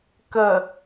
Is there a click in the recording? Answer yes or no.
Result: no